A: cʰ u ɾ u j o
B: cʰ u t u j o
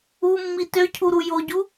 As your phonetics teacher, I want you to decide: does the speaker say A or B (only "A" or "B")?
A